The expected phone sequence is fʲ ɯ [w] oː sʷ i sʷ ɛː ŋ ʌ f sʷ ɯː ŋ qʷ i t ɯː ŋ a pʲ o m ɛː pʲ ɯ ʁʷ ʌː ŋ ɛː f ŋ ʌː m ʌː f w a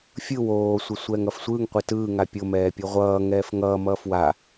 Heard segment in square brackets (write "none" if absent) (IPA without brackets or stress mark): w